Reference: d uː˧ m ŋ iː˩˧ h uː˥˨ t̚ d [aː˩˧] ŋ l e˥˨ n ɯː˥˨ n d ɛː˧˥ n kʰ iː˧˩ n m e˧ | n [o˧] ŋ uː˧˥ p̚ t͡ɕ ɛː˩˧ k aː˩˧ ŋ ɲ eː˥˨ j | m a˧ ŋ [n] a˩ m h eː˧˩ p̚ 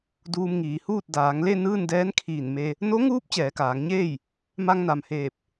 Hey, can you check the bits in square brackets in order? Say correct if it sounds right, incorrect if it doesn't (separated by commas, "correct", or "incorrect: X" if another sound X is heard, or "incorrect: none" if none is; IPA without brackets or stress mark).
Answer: correct, incorrect: o˧˥, correct